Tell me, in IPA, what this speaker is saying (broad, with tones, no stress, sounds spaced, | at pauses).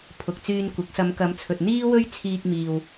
pʰ ʊ˨ k̚ t͡s yː˧ n kʷ ɪ˨˥ k̚ s ɐ˨˧ m k ɐ˨˧ m t͡sʰ ɵ˨ t̚ n̪ iː˥ w ɵ˥ ɥ t͡sʰ iː˧ k̚ m iː˨ w